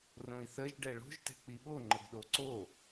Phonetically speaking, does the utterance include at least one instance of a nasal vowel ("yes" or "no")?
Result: yes